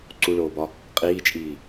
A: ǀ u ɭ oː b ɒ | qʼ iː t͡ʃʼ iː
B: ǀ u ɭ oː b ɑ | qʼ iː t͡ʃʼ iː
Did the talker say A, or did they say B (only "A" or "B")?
A